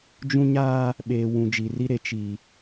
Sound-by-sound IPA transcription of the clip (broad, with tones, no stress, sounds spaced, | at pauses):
d͡ʒ ũ˦ ɲ aː˦ | ɓ eː˨ w ũ˨ d͡ʒ i˨ r i˦ ɾ e˨˦ t͡ʃ i˨